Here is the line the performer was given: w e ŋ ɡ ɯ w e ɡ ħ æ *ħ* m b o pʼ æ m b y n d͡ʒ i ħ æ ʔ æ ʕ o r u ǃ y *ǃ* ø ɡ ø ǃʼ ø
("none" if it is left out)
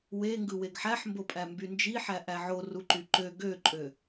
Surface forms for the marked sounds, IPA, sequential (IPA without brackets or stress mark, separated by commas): ħ, ǃ